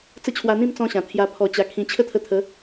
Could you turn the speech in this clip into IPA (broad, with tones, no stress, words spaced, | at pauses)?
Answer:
t͡sə˦t͡ɕʰwa˧n̪ĩ˥˧m t͡sɔ̃˦ɕã˨˩ t̪ʰja˧pʰɔ˧t͡ɕa˧kʰĩ˧ t͡ɕʰə˥˧t̪ʰə˧t̪ʰə˨˦